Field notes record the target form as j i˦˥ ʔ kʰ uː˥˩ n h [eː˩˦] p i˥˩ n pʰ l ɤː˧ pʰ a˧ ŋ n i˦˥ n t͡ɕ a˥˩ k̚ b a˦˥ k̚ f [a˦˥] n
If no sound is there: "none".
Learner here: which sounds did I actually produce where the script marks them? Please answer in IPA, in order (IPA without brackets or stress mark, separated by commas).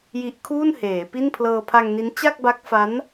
eː˩˦, a˦˥